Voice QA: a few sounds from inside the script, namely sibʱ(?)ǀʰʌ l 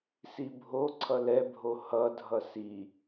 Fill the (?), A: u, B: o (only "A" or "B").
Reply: B